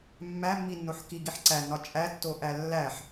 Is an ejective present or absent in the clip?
present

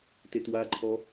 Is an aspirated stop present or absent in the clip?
present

